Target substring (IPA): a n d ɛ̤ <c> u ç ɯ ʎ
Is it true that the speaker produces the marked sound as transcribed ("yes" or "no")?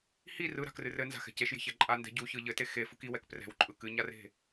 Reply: no